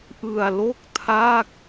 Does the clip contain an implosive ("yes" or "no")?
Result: no